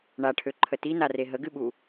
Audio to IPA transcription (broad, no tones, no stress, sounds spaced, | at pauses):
ɳ a ʈʰ ø ǃʰ ə t i n a r e ɦ ə ɡ ɨ ɓ u